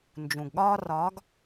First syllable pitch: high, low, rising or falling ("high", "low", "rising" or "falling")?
low